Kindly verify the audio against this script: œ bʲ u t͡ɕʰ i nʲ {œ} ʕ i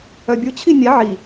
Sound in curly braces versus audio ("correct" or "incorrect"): incorrect